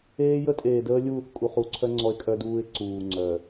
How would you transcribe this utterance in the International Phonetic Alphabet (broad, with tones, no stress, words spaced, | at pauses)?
eː˦ jə˦tʼeː˨dəː˦lʲuː˦˨θ kʼu˨χu˨˦ǀʰœ˦ ŋ͡ǀɔ˦ɪ̯kʼœ˦duː˦ɪ̯ ǀuː˨ ŋ͡ǀœ˨